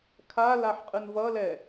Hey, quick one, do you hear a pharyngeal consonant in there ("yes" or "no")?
yes